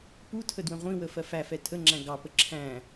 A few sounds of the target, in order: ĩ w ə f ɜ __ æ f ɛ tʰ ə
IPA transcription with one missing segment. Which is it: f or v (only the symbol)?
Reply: f